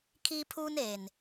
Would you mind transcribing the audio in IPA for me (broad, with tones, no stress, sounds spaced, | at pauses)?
kʰ iː˦ pʰ uː˦ n eː˨ n